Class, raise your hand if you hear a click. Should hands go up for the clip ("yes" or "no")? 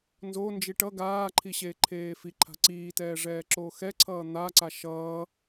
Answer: yes